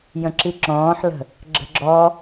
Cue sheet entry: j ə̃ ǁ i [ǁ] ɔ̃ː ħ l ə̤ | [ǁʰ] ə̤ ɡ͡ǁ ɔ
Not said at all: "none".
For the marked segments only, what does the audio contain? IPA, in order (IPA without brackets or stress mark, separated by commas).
ǁ, ɡ͡ǁ